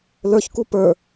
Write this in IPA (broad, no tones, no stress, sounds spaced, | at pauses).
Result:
l ə˞ ç k u p ə˞